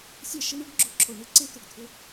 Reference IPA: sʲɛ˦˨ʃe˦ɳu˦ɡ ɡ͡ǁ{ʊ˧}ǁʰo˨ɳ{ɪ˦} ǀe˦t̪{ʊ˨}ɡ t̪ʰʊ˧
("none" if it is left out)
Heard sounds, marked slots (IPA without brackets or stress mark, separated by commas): ʊ˧, ɪ˦˨, ʊ˨